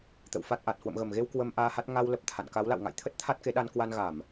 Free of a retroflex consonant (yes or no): yes